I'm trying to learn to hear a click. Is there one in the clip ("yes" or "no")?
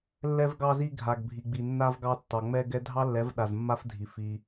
no